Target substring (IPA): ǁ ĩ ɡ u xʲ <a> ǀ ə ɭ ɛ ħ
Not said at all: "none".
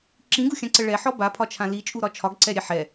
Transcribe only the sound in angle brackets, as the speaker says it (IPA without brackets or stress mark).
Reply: ã